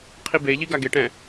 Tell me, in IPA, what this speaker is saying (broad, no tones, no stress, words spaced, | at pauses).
qʰibeʎi ɡaɡeʈɛ̃